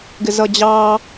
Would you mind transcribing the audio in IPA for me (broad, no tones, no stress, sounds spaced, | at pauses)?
ɡ ɪ z ʌ d͡ʑ ɑ